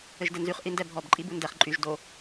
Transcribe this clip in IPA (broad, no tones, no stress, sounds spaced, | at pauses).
ɘ ʒ d ɘ n z y χ ʔ i n d ɛ bʱ ɔ b ǃʼ i b u n d ɛ χ ǃʼ y ʒ d o